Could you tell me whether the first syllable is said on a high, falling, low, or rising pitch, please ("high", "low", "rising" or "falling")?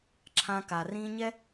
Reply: high